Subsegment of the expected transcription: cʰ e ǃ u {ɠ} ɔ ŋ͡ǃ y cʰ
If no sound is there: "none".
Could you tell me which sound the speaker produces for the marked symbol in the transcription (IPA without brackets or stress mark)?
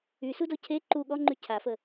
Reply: ɠ